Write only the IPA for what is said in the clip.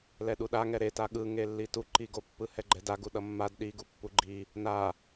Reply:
lɛɗuɗa ŋɛɾeta ɠɯŋelːi tuǃiɡopːɯ hɛɡ͡ǃɛdaɡu ɗʌmːad ɗiɡu pːuɡ͡ǃi | na

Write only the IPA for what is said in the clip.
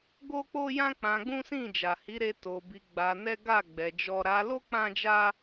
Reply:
ɡo˦k͡po˦jã˦ k͡pã˧ɡ͡bũ˦sĩ˦˨ d͡ʒa˨hi˨˦ɾe˧ to˧bi˧ ɡ͡ba˧nɛ˦ ɡa˦˨ ɡ͡bɛ˧d͡ʒɔ˦ ɾa˧lo˦ k͡pã˦d͡ʒa˦

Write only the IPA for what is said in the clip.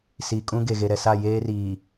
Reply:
si˨ kʼũ˦ ɡe˨ɣe˨ɾɛ˨sa˦˨ jeː˦riː˨

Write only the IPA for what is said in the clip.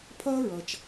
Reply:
pʰʌː˥ɹʌ˩t͡ʃ

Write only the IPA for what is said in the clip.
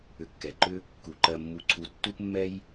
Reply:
ʏ˨kːɛ˩ǃʏ˦ | ku˩ǃɜ˨mːu˨ǀʰu˨ tːu˦pmːɛ˦j

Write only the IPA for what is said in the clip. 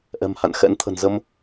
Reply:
ʔɛ̤˨˩mha̰˧˨nxɛ̰˧˥nt̪ʰə̤˨˩n zə˧m

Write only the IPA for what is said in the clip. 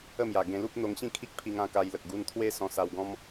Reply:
ə˥˧mja˨˩ ɡẽ˧lu˦p̚ n̪o˧ŋɕĩ˥˧kʰi˦k̚pʰi˧ŋ ã˧ka˧jlə˨k̚ ɡu˧nt̪ʰwe˦ sɔ̃˧sa˧w ɡɔ̃˦m

